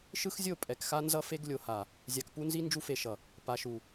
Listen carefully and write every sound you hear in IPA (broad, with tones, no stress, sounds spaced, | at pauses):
ʃ ɯ˦ x zʲ o˦˨ pʼ ɛ˨ k x a˦ n z ʌ˦ f e˦ ɡ lʲ o˨ h a˨ | zʲ a˨ k p u˦ n z i˦ n d͡ʒ u˦ f e˨ ʃ ʌ˨ | p a˨ ʃ u˨